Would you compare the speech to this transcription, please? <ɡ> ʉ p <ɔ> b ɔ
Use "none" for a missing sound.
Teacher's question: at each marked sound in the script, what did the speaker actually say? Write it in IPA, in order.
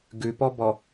ɡ, ɔ

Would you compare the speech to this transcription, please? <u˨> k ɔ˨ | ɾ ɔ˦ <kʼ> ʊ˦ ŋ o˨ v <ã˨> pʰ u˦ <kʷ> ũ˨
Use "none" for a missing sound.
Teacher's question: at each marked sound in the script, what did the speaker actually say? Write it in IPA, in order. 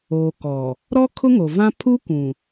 o˨, kʰ, ã˦, kʷ

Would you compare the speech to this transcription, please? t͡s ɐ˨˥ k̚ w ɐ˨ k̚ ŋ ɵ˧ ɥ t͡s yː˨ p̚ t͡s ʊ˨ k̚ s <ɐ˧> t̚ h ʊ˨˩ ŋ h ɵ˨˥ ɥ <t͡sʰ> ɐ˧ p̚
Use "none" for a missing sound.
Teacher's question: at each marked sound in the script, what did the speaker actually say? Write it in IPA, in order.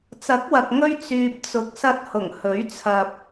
ɐ˧, t͡sʰ

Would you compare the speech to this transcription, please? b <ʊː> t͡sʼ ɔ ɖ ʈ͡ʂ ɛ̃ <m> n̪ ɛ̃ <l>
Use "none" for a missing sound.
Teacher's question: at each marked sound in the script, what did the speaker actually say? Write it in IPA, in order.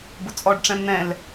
ʊ, m, l

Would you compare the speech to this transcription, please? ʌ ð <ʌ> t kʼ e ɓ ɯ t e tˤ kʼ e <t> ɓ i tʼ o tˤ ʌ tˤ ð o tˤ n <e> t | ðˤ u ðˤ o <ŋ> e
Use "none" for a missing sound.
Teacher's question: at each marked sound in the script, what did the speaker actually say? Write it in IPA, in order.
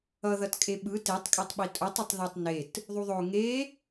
ʌ, tˤ, e, ŋ

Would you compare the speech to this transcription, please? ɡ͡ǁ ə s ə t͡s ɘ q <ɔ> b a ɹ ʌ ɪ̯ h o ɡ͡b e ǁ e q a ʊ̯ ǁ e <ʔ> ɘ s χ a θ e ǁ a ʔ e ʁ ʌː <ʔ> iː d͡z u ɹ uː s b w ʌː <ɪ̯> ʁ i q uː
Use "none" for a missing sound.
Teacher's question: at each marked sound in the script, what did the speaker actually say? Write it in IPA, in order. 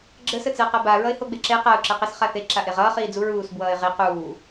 ʌ, q, χ, ɪ̯

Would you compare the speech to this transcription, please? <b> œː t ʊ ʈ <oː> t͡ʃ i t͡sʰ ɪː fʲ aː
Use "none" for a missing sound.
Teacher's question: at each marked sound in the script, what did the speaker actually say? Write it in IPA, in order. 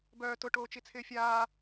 b, oː

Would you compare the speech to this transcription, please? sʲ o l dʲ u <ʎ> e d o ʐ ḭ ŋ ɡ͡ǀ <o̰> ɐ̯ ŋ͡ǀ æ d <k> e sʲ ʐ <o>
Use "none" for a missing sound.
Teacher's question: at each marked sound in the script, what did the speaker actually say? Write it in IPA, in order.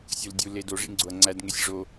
l, o, ŋ, o

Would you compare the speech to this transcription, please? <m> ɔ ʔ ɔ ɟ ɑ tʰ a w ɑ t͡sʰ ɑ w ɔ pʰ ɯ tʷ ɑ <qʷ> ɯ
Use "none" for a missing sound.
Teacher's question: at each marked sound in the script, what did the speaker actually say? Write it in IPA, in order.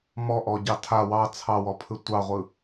m, ʁʷ

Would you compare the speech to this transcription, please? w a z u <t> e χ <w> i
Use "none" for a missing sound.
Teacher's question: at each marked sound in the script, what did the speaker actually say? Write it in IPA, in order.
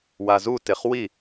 t, w

